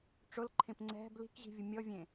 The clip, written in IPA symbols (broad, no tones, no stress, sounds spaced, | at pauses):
ʈ͡ʂ ʊ l ǃʰ ẽ p ŋ͡ǀ ɛ̤ b l i̤ k ʑ i̤ vʲ ʊ mʲ ɔ vʲ ẽ